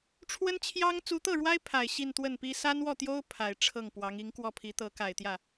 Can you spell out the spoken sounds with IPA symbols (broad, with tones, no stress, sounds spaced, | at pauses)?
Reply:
ʈ͡ʂʰ w ə˥ n t͡ɕʰ j ɑ˥ ŋ t͡s u˧˥ t̪ ɤ˥˩ ɻ w a˥ ɪ̯ pʰ a˨˩ ɪ̯ ɕ i˥˧ n t̪ w ə˥˩ n p i˥ s a˥ n w ɔ˥˩ t̪ j o˥ ʊ̯ pʰ a˨˩ ɪ̯ ʈ͡ʂʰ ɤ˥˩ ŋ p w ɑ˧˥ ŋ i˧˥ ŋ k w ɔ˥˩ pʰ i˧˥ t̪ ɤ˧˥ k a˨˩ ɪ̯ t̪ j ä˥˩